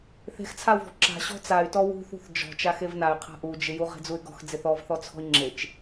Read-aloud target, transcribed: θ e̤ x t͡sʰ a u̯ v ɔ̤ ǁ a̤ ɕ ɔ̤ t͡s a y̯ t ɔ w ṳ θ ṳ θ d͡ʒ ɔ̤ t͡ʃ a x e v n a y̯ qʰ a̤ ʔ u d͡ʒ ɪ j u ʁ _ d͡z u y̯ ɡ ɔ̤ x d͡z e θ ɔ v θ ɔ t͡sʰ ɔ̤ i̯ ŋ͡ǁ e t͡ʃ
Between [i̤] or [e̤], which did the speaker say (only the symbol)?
e̤